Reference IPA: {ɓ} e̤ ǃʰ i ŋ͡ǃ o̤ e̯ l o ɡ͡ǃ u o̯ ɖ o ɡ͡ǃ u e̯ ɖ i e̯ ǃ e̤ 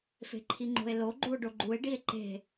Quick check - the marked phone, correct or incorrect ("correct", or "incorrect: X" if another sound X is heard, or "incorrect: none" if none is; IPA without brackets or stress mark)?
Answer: incorrect: f